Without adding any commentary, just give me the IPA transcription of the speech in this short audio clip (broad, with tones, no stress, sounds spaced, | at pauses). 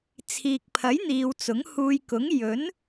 t͡sʰ iː˨ k̚ pʰ ɐ˨˥ j n̪ iː˨ w t͡s ʊ˨˥ ŋ h uː˧ j k ʊ˨˥ ŋ j ɵ˨˥ n